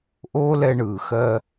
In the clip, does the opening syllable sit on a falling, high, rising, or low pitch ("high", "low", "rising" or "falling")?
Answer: high